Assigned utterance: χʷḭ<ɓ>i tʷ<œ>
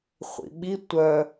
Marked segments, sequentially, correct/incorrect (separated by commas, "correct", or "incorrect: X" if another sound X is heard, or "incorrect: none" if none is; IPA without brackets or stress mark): correct, correct